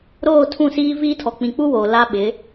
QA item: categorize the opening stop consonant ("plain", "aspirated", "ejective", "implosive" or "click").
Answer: aspirated